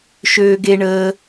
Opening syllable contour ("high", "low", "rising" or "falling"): low